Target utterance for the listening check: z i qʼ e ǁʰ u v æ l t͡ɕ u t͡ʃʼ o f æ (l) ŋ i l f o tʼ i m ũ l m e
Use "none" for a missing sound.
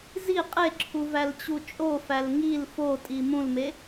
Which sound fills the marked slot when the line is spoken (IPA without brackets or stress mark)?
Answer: l